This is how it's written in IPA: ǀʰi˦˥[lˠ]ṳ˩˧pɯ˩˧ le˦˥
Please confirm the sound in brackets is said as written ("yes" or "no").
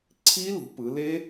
no